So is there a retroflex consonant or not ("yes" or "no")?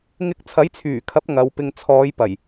no